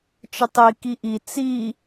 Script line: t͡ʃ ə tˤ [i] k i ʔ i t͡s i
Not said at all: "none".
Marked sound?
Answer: i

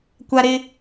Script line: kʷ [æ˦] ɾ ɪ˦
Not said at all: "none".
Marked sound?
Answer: a˦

